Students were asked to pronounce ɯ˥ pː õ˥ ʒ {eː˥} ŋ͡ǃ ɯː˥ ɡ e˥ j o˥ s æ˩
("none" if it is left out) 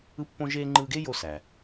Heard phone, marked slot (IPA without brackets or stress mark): eː˥